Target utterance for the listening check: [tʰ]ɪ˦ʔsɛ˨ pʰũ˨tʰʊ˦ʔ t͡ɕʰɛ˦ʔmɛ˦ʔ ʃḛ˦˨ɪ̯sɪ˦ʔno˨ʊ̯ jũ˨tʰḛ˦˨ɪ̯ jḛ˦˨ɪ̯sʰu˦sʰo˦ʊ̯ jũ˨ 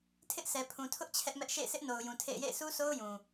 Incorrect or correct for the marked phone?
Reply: correct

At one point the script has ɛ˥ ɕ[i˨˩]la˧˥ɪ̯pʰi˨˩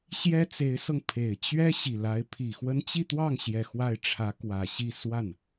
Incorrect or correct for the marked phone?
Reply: correct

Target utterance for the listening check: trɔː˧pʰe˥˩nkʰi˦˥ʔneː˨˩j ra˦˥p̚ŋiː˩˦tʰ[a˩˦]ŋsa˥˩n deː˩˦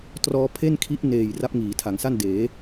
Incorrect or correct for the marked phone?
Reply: correct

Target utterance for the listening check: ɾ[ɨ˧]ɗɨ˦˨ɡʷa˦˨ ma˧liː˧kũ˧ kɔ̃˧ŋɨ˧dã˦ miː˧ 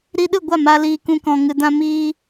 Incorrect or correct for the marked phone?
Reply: incorrect: i˧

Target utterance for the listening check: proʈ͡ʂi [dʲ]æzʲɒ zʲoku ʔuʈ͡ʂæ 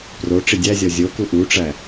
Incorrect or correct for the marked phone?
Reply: correct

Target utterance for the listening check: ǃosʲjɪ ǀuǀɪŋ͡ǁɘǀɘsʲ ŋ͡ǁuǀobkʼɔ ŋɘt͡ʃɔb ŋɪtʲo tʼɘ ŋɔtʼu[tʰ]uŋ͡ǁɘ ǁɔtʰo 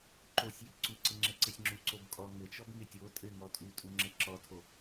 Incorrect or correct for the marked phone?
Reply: incorrect: tʼ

